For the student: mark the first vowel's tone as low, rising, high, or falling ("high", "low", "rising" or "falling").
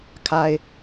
low